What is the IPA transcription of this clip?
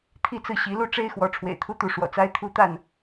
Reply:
t̪ʰ i˥˧ t͡s ɹ̩˥˩ ɕ i˧˥ l u˥˩ ʈ͡ʂ e˥ ɪ̯ x w ɔ˧˥ ʈ͡ʂʰ w ḛ˨˩ ɪ̯ t̪ʰ u˥ t̪ u˧˥ ʂ w ɔ̰˨˩ t͡s a˥ ɪ̯ t̪ʰ u˥ t̪ a˥˩ n

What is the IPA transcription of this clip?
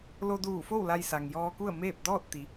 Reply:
l o˧ d uː˧˩ f o˥˨ w l a˧ j s a˩ ŋ j ɔː˧ k u˥˨ ə̯ m eː˥˨ p̚ d ɔː˥˨ t̚ t̪ i˩˧

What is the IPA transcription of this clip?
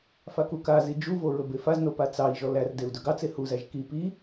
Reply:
f a k u k a z i d͡ʒ u v o ɹ ɵ b e f a z n o p a t͡s ɑ i̯ ʒ ɔ l æ r d e u̯ d ɵ ɡ ɑ t͡s e h u z æ ʒ k i p i

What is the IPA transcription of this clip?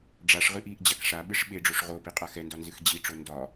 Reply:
ɖ͡ʐ a ʂ ʁ ɨ ʔ i ʔ d͡ʑ a k ʂ a ɓ ɨ ʂ ɓ e ɖ͡ʐ o ʂ ʁ o p i qʼ a x ɛ n d ɒ n z ɨ x d͡ʑ i ʈ͡ʂ o n d ɒ

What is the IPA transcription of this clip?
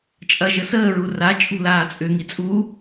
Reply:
t͡ʃʼ ɐ ʒ ə s əː ɹ u r a t͡ʃʼ ṳ l aː t͡sʼ ʏ ŋ i t͡sʼ u

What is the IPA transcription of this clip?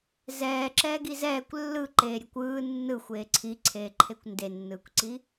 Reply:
z ɛː ǁ ɛː ɡ i z ɛː kʷ lː ɯ ǃ eː ɾʲ e kʷ ɯː nː ɯ xʷ eː ǀʰ i ǀʰ eː ǃʰ e kʷ n d e nː ɯː kʷ ǀ i

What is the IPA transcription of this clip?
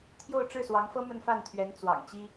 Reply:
t̪ʰ j o˥˧ ʊ̯ ʈ͡ʂ ɻ̩˥˩ s w ɑ˧˥ ŋ f ɤ˥ m ə˥˧ n f a˥˩ n t̪ʰ ɥ ɛ˧˥ n t͡s w ɑ̰˨˩ ŋ t͡ɕ i˥

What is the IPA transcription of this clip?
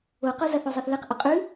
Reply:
o q o z a θ o zˤ e θ l e q ʔ ʊ qʼ ʉ

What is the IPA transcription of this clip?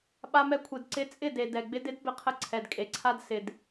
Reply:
ɓ a˧ m ɛ˧ kʷʰ e˨ d ǀ ɪ˧ t͡sʼ ɪ˦˨ d e˨ d ɛ˨ ɡ͡b ɪ˧ d ɪ˦ d b ɪ˧ qʰ ə˧ ǀʰ ɛ˨ d kʼ e˨ ǀʰ a˦ d s ɪ˨ d

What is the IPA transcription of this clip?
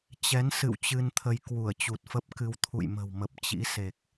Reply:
t͡ɕ ɛ˨˦ n s ɨ̰˧˨ w t͡ɕ ɨ˧ n t̪ʰ ə˧ j k w u˧˩ ə̯ t͡ɕ u˨˩ t̚ f ə˦˥ p̚ k ɨ˧ w t̪ʰ ṵ˧˨ j m ə̤˨˩ w m ə˨˩ p̚ t͡ɕ ḭ˧˥ s e˨˩ k̚

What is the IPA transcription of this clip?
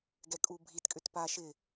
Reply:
ɡ ɛ kʼ u bʱ i t kʼ ʏ t p a ʃ ɪ

